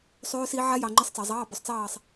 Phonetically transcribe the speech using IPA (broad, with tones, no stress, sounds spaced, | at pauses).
sˤ ʉː˦˥ s i˦˥ ʕ a˦˥ j ɑ˨ ŋ͡ǃ ɨ˧˥˧ sˤ t͡s ɑ˨ zˤ ɑː˧˥˧ b ʉ˨ sˤ t͡s ɑː˦˨ sˤ